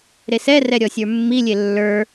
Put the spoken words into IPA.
ɾesɛrɛ ɾʲɔsʲə˞mːilʲe lːə˞

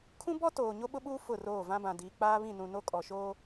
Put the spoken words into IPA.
kʰũ˦bɔ˦ toː˨ ɲo˦ɓʊ˦ɓuː˦ fʊ˦˨roː˦˨ vã˦bã˨ diː˨k͡paː˦βĩ˦˨nũ˨ no˦kʼɔ˨ʃoː˦

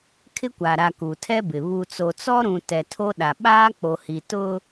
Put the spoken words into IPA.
kʰɪ˦kʷa˨ɾa˨ ku˨tʰɛ˦bɪ˨ βu˨t͡so˨ t͡sɔ˦ɾũ˨ tɛ˨ tʰo˦ɗa˨ ɓaː˦k͡po˨hi˨ tʊ˦

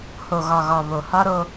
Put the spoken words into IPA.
ho˨ɣɒ˨ɣɒ˨ βo˨hɒ˦ ɾo˦

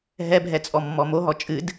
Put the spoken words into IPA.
ɦɛbʱɛt͡sʼɔmːɔ moɦɔ t͡ʃʼɨd

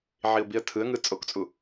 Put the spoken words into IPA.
ʕiʊ̯biə̯tʰɯə̯ŋɯ t͡sʼokt͡sʼu

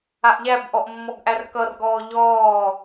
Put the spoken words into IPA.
aʔʎæbʔɔʔ mːɔɡʔærkʌrɡɔː ʎɔː

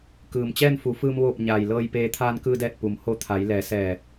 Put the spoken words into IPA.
kɯː˩mt͡ɕɛː˥˨nfu˩˧fɯː˧m ʋoː˧˩p̚ɲaː˩j lɤː˧jpeː˧ t̪ʰaː˧nkɯː˧dɛː˧˩t̚ pu˩˧mho˧t̪ʰa˩˧j lɛː˩˧sɛː˧˩

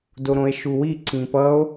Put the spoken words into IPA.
doɾõe̯ʃuwi ǀĩpʌo̯

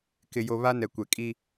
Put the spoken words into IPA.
kɪ˨jo˨ βa˦ nɛ˨kʷɛ˨ kʼi˦

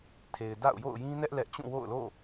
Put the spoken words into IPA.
tʰe˨ɪ̯da̰˦˨ʊ̯ jo̰˦˨ʊ̯jĩ˦nɛ˦ʔ lɛ˦ʔ t͡ɕũ˦˨wo̰˦˨ʊ̯lo̰˦˨

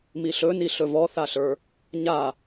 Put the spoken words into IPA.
miɬɵni ɬɵvɔθaɬə˞ | ɲa

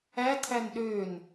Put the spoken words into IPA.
ætʰæn ɗøn

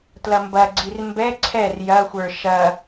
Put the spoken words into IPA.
tlɐmbɐɡ͡ǀir mbɛ ǀʰɛr jɐxʷə˞ ʃɐ

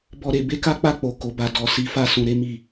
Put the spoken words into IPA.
bɔ˧ ɾe˨ be˧ka˦k͡pa˦˨ k͡po˨ ko˨˦ba˧ dɔ˨si˨˦fa˦˨ sũ˧ɾe˦mi˦˨

